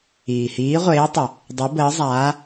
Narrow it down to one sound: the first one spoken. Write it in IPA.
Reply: iː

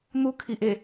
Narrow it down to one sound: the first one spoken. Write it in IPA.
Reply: n̪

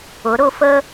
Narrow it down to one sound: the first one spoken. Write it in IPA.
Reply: ʊ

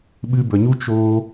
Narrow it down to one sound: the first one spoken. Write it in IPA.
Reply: ɓ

